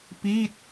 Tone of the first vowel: falling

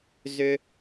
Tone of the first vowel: high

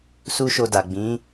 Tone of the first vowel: high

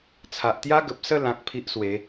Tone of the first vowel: low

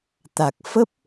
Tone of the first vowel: low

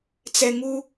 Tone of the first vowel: low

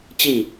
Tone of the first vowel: falling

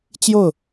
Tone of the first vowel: falling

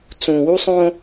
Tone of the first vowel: low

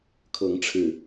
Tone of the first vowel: rising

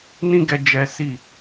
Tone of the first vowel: high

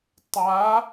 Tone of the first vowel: rising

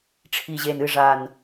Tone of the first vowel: low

